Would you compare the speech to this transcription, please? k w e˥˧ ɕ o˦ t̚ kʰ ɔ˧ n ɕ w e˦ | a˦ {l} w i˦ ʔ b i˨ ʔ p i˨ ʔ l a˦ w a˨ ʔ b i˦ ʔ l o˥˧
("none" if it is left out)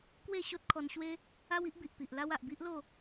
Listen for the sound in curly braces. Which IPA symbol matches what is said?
none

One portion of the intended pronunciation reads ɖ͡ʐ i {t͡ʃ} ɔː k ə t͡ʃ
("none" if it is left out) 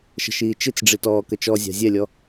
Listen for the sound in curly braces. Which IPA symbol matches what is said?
t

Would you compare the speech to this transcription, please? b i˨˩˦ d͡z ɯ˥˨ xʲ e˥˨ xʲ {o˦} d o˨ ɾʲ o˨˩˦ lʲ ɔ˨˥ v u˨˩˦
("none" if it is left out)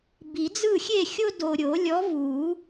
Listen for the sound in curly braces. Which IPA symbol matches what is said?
o˦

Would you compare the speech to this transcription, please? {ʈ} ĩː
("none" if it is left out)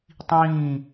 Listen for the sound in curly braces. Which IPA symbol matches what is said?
tˤ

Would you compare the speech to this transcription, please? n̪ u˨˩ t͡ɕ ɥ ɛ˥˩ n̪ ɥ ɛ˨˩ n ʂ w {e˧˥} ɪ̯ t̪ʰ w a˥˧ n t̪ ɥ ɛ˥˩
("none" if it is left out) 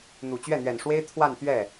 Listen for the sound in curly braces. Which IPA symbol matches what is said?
e˥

